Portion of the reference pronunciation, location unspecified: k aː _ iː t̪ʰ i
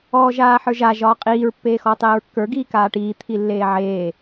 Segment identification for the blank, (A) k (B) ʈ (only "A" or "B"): B